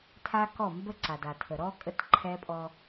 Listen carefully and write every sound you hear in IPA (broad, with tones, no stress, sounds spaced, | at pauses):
tʰ a˦ k ɔ˦˨ m b ə˦ ǀ a˨ d a˨ tʰ ə˨ ɾ ɔ˦ kʼ ə˦˨ t ǃʰ ɛ˦ pʼ ɔ˦